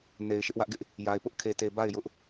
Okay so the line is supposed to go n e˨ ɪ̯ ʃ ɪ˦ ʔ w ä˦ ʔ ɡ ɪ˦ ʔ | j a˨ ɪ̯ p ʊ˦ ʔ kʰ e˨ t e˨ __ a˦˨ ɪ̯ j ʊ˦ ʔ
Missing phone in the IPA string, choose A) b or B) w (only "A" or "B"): A